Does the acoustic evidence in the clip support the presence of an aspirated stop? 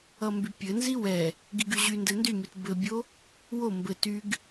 no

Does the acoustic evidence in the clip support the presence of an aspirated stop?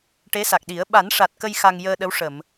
no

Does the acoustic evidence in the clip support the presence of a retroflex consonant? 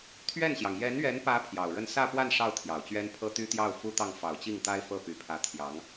yes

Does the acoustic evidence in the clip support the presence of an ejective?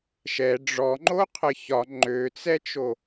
no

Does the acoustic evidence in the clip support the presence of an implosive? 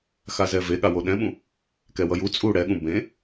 yes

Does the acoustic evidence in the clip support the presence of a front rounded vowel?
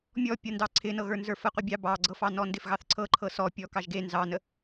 no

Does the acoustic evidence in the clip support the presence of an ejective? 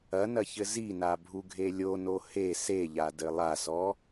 no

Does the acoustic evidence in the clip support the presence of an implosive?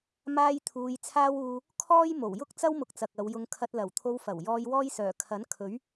no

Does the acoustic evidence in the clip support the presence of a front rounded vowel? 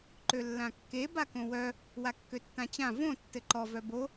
yes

